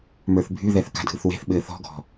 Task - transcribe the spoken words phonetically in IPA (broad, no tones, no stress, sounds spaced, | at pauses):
m ə˞ θ bʱ y ð ɛ θ k a̤ dʱ ɯ θ w e̤ θ ɓ ɘː θ ɔ̤ ɡʱ ɔ̤